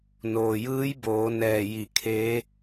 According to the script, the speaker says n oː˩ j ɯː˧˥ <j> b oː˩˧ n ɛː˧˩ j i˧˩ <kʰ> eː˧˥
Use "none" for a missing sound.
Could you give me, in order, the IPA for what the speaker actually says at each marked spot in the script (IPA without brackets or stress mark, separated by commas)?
j, kʰ